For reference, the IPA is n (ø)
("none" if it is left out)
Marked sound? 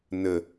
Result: ə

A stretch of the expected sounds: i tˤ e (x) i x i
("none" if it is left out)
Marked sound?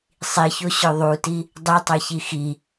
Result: ç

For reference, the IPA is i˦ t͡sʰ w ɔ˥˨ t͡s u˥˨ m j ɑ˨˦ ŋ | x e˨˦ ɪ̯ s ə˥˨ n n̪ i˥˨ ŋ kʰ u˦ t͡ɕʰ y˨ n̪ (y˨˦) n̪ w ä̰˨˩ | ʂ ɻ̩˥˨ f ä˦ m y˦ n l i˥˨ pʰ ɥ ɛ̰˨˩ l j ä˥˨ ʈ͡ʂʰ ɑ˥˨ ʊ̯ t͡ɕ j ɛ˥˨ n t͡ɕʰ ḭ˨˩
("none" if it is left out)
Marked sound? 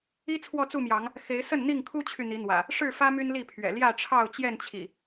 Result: i˨˦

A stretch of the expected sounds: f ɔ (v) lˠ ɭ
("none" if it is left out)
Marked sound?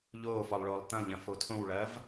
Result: none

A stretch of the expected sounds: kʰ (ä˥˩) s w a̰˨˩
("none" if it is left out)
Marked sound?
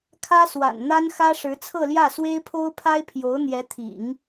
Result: ä˥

